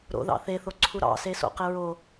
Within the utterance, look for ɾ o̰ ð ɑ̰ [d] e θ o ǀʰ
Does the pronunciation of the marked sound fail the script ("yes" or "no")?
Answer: yes